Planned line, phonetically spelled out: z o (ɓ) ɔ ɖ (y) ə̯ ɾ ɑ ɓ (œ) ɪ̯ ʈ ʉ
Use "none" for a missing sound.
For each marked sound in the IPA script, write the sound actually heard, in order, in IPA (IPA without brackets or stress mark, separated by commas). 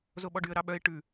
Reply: ɓ, y, œ